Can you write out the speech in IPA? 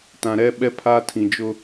tã˨ɾɛ˦ ɓɛ˦pʰa˦tʰĩ˨d͡ʒʊ˦

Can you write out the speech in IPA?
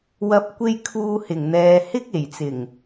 wɐ˨˥p̚kʷe˧j kʰuː˧hɪ˨˩ŋn̪ɛː˨ hɪ˥k̚e˨˩jt͡sɪ˨˩ŋ

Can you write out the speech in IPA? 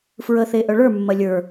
fɹəθe ʔœɭə˞mːɐ lʲə˞

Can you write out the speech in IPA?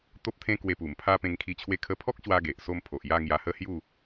t̪o˦p̚t̪ʰẽ˦ kwe˧pu˨˩mpʰa˦ pẽ˧ŋkʰi˧ t͡ɕʰwe˧kʰə˧pʰɔ˦k̚ɕwa˧ ɡe˨ʔso˥˧m pʰo˨ʔja˥˧ ŋja˧hə˥˧hju˥˧

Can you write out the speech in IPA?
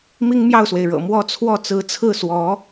mi˥ŋmjɑ˥˩ʊ̯swe˩ɪ̯ɻɤ̰˨˩ mwɔ˥˧t͡sʰwɔ˥˩ t͡sɹ̩˧˥t͡sʰɹ̩˥˩swɔ˧˥

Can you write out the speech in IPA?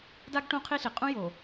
da˦ɡʈũ˦ qʰi˦ɬi˨ qʼũ˦ jo˨

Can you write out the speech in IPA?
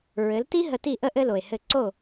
ɹɘ˩˥lti˥ ɦə˧ti˥˩ʔə˥ ʔɘ˥lo˩e̯hɘ˥˩ ǀo˥˩

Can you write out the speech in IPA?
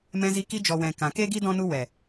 mɛ̃˧zi˧ ki˧d͡ʒɔ˨wɛ̃˨ kã˨ke˦ɡi˦ dɔ̃˦nu˦ wɛ˨

